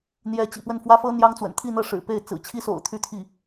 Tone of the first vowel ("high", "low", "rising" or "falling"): rising